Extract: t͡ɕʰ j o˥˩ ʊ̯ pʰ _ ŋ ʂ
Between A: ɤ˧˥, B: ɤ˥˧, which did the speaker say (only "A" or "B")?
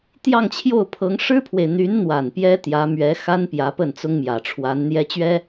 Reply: A